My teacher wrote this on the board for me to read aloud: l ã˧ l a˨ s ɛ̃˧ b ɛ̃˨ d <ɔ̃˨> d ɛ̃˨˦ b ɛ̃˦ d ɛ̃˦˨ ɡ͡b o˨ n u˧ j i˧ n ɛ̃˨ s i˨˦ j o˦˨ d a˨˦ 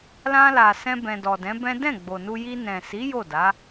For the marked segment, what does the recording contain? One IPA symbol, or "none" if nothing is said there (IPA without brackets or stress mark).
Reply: ɔ˨